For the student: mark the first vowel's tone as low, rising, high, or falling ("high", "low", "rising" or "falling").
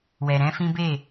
low